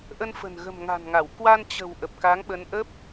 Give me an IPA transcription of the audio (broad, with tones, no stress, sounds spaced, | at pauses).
ʔ ə˧ n f ə̤˨˩ n ɣ ə̤˨˩ m ŋ a̤˨˩ n ŋ a˧˩ w k w a˧ n t͡ɕ ə̤˨˩ w ʔ ə˨˩ p̚ k a˨˦ ŋ ɓ ə˨˦ n ʔ ə˦˥ p̚